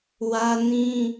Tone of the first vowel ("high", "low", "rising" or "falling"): high